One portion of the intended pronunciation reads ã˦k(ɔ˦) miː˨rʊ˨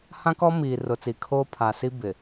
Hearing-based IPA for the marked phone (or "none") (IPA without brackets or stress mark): ɔ˦